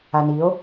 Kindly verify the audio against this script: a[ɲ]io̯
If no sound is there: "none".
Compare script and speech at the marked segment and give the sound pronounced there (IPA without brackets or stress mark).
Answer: n